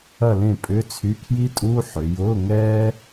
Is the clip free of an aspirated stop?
no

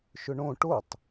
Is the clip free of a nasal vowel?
no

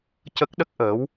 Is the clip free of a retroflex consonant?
yes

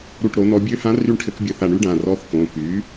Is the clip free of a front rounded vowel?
no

